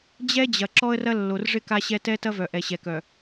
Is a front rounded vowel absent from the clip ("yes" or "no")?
no